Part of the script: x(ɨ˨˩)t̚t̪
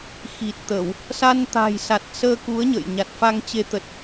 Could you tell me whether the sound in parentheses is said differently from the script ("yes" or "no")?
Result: yes